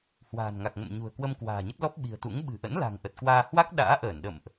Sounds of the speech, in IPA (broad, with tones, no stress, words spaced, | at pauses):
hwa̤ː˨˩nŋa˨˩k̚ŋə̰˧˨mɲṳ˨˩ə̯ kwə˧mkwa̤ː˨˩ɲə˦˥t̚ lɔ˦˥p̚ɓi̤˨˩ə̯t̪ṵ˧˥ŋ ɓɨ̤˨˩ʔə̰˧˥n la̤˨˩ŋʔə˨˩t̚kwaː˧ hwa˦˥k̚ ɗa̰ː˧˥ʔəː˧˩nɗə̰˧˨mʔ